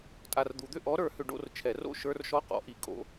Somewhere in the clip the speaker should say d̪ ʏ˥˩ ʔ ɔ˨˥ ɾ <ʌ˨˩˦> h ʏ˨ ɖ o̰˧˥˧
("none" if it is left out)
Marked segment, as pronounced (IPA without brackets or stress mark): ə˞˨˩˦